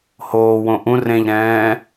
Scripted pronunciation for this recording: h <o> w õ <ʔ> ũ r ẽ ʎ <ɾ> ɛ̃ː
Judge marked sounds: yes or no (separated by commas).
no, yes, yes